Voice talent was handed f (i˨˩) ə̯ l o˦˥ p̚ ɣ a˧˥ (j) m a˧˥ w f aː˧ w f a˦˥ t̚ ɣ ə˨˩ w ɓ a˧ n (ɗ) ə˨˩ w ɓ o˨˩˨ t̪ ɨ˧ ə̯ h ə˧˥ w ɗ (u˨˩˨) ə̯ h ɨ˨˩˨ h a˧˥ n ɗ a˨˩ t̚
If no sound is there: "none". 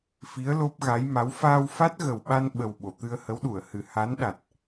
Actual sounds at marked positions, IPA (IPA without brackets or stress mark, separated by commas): i˧˥, j, ɓ, u˨˩˨